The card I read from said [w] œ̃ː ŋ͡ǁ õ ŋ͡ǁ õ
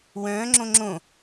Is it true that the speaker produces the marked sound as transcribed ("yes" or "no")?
yes